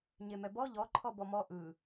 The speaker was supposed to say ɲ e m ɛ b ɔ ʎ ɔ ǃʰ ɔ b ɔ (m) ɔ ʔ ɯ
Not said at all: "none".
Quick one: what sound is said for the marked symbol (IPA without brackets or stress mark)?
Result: m